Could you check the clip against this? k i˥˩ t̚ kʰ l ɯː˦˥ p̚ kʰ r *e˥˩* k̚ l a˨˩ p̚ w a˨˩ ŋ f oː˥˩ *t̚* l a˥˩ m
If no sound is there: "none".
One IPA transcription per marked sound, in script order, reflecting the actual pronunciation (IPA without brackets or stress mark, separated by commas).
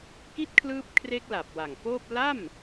e˦˥, p̚